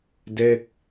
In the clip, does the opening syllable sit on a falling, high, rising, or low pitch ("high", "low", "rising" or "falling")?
falling